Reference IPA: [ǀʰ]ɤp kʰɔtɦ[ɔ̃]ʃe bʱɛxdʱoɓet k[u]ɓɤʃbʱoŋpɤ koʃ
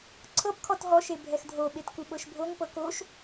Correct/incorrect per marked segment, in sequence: correct, incorrect: ɔ, correct

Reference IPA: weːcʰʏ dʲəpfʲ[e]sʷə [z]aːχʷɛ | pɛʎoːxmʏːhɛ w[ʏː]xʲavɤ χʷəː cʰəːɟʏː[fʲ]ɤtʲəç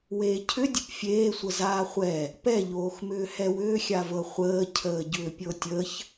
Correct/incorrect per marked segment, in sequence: incorrect: eː, correct, correct, incorrect: pʲ

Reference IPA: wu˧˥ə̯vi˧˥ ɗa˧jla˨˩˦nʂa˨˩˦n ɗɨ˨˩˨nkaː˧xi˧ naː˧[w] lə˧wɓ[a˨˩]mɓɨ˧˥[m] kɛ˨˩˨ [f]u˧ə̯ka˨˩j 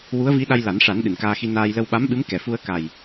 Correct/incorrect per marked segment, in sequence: incorrect: j, incorrect: a˧˥, correct, correct

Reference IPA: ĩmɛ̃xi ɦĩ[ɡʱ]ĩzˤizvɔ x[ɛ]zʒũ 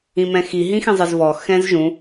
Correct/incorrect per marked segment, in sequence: incorrect: x, incorrect: ɛ̃

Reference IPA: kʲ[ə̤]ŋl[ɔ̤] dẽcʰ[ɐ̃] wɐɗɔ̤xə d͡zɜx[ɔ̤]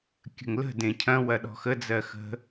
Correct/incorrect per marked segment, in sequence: correct, incorrect: ə̤, correct, incorrect: ə̤

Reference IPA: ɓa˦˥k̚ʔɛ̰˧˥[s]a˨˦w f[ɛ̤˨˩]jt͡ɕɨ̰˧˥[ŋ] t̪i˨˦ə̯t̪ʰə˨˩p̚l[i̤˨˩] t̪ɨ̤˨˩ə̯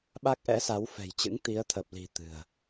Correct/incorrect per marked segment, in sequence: correct, correct, correct, correct

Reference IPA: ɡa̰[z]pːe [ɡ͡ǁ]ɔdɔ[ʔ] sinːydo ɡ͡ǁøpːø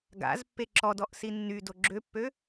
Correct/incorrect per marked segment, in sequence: correct, incorrect: ǁ, correct

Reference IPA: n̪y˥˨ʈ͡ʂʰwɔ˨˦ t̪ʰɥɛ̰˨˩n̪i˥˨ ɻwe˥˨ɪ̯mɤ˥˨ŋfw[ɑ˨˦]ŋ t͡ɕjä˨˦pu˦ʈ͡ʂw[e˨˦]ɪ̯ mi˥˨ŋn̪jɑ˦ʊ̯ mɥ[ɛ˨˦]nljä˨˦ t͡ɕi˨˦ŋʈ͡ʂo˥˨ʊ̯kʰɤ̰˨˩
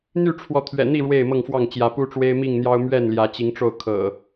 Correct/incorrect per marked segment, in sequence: incorrect: ɑ˥˨, incorrect: e˦, incorrect: ɛ˥˨

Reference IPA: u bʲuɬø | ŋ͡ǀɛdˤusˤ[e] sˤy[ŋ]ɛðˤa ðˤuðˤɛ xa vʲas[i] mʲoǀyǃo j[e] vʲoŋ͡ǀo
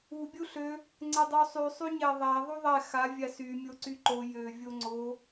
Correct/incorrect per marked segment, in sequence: incorrect: y, incorrect: ɲ, incorrect: y, incorrect: ø

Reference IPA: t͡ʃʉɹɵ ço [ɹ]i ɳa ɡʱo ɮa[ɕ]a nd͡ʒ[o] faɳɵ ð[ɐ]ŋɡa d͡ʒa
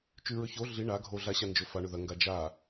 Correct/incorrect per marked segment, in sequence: incorrect: ɮ, correct, incorrect: ɵ, correct

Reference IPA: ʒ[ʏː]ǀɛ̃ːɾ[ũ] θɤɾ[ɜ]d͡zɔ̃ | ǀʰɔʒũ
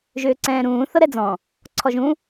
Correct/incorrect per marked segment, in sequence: correct, incorrect: ũː, incorrect: ɛ

